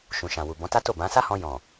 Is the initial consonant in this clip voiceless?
yes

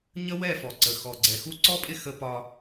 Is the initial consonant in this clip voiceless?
no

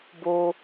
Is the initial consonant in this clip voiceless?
no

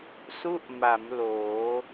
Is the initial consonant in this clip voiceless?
yes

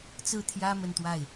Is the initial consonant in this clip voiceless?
yes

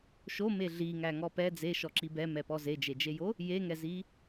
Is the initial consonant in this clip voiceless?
yes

